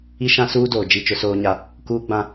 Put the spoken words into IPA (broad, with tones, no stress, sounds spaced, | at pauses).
i˦ ʃ ã˦ s uː˦ d oː˨ d͡ʒ i˦˨ t͡ʃ ʊ˦ s oː˦ ɲ a˦ | k uː˦ ɡ͡b ã˦